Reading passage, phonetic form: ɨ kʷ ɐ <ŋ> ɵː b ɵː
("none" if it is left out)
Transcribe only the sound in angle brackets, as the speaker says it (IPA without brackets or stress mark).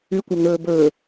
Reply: ŋ